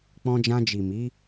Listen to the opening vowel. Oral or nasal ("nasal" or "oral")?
nasal